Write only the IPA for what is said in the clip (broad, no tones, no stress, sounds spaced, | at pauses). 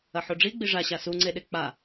ɐ ħ o ɖ͡ʐ i ɡ͡b i ʐ a ɕ a s u ŋ͡ǀ e ɗ e k͡p a